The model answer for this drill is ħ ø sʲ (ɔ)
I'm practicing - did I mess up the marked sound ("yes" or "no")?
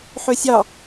yes